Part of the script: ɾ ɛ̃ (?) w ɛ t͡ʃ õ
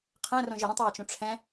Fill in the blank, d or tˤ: tˤ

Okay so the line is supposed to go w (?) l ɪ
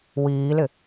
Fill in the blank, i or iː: iː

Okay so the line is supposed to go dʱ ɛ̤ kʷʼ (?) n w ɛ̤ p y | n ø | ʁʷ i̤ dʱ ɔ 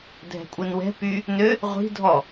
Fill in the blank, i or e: i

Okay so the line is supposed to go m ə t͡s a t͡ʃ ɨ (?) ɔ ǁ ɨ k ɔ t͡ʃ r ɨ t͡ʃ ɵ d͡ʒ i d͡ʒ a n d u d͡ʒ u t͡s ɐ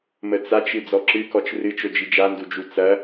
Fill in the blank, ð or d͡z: d͡z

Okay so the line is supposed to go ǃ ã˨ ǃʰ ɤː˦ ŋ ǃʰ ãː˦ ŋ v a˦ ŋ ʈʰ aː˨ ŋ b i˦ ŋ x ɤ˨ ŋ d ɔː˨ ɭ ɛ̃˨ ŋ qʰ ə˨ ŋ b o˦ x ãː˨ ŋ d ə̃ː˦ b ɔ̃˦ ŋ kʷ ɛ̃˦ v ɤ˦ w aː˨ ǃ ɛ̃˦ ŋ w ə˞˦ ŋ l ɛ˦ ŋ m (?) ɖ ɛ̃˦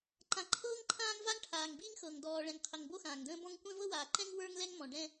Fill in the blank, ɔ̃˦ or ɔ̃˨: ɔ̃˨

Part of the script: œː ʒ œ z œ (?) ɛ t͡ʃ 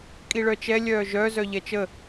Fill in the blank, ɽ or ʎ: ʎ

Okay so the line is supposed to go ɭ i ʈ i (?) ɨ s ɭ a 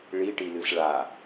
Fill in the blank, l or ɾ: l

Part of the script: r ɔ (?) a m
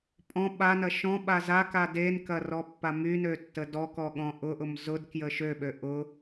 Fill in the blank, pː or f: pː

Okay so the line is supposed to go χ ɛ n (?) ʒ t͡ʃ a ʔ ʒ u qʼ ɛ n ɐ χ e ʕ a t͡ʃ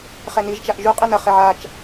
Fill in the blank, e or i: i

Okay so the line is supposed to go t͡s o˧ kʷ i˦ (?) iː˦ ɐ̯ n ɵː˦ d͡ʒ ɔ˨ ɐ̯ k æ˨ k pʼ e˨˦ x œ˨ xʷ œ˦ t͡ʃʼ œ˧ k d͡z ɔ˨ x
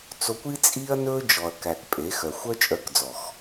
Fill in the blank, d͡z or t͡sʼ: t͡sʼ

